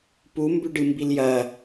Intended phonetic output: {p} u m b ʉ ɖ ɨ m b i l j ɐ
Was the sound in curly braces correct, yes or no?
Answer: yes